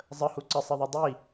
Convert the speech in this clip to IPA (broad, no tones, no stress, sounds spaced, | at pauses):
zˤ ə h u ǀ ə sˤ ɪ ðˤ ʌ dˤ i